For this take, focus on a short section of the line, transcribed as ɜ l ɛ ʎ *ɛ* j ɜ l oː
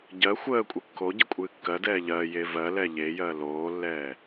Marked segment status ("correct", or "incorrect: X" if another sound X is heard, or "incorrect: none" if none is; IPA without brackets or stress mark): incorrect: e